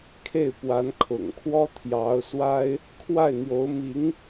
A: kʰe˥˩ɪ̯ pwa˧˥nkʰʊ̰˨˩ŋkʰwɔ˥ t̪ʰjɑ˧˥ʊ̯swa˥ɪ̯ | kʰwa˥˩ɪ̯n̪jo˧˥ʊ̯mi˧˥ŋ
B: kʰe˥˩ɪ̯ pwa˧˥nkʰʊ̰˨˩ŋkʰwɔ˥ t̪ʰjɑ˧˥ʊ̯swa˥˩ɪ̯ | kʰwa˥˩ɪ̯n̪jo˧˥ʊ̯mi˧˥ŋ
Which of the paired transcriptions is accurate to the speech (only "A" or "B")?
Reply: A